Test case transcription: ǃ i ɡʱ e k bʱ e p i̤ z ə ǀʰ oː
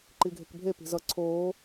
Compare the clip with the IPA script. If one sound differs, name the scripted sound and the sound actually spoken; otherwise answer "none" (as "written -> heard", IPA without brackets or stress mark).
ə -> ʌ